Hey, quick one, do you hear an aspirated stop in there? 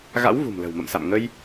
no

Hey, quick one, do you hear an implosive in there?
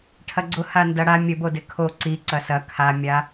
no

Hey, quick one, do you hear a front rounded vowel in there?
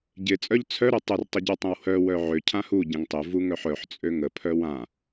yes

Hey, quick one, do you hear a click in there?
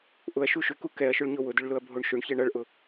no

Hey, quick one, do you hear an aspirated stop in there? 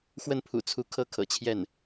yes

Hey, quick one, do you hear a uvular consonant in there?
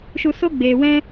no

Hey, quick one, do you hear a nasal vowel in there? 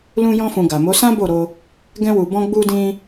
yes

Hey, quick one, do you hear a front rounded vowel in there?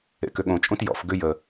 yes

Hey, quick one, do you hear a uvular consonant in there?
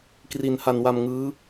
no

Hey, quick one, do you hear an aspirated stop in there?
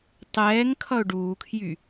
yes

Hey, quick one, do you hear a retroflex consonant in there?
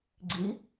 no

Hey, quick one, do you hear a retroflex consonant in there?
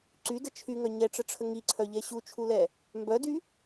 yes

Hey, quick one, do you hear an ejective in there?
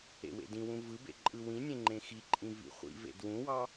yes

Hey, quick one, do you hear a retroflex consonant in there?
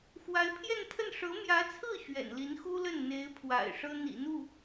yes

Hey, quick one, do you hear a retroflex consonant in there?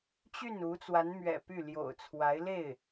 no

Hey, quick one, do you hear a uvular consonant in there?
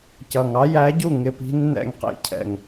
yes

